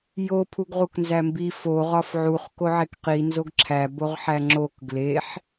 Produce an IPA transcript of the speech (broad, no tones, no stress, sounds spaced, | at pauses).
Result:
j o pʰ u ɡ ʁ u k n z æ m b i f o ʁ ɒ f ʕ u χ k o ʕ e k q i n z o ɡ ǁʰ æ b o ʁ ħ æ ŋ͡ǁ o k ɡ l e ħ